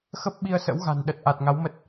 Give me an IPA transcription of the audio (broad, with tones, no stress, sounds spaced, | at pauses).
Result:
x ə˦˥ p̚ ɓ i˧ ə̯ s ə̰˧˥ w ɣ a̤˨˩ n ɗ ə˨˩ t̚ ʔ a˨˩ t̚ ŋ a˨˦ w m ə˦˥ t̚